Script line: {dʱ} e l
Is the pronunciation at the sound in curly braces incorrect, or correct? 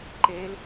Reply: incorrect